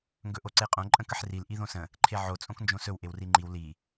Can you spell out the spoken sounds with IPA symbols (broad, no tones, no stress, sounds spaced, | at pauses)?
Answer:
ŋ ɡ ɵ ʔ o ǀ e qʼ õ ǃʼ ə̃ k ə ħ r i l ʔ i ð õ s ə̃ | ǃʰ e ʕ o t͡sʼ õ k n d͡ʒ õ s ɵ w ʔ e w r i ŋ͡ǃ i w l i